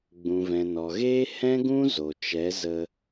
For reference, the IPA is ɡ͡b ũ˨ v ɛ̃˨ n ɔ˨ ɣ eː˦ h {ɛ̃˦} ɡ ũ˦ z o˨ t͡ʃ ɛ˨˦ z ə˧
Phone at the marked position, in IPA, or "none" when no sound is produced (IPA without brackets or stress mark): ɛ̃˦